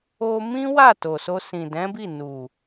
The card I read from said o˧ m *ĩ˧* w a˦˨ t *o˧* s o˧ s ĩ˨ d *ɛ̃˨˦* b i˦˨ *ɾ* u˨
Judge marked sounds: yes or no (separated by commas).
no, no, yes, no